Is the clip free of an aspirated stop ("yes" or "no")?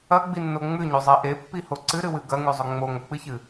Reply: yes